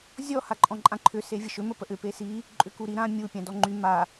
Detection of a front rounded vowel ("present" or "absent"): present